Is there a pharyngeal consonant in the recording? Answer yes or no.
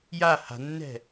no